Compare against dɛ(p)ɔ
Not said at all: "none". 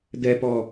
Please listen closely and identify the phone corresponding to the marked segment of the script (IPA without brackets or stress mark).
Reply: p